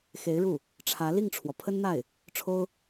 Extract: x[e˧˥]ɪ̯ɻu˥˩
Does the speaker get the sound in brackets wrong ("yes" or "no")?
no